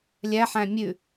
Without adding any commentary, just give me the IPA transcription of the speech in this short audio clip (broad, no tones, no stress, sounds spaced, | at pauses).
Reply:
lʲ æ ħ æ̃ mʲ ʉ